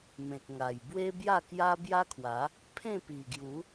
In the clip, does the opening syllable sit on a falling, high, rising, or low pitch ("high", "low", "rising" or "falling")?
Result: low